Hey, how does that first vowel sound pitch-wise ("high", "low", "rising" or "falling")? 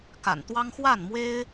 low